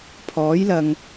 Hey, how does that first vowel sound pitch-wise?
rising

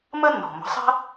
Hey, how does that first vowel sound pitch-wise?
high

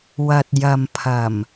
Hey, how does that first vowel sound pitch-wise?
low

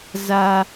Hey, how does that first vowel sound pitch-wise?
high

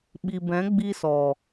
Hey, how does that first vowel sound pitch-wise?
low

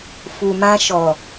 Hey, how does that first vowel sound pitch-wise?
low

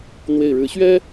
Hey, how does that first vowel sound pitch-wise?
low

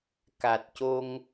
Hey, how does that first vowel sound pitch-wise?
low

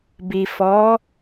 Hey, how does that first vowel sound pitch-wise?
low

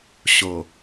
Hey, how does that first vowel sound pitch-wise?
low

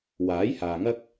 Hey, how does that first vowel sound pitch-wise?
rising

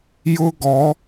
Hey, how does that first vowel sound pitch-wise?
high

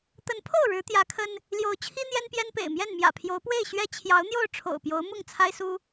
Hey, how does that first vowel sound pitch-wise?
rising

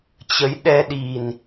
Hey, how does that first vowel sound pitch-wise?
rising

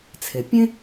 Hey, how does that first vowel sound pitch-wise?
low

